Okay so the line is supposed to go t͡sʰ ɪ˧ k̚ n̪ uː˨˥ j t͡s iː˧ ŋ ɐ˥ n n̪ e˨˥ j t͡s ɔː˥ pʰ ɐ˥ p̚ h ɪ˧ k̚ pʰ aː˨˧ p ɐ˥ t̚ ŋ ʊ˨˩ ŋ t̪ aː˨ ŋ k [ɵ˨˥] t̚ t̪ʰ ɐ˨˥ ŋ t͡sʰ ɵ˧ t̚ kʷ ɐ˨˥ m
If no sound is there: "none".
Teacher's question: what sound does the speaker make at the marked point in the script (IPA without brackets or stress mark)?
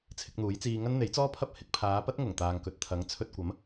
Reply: ɵ˨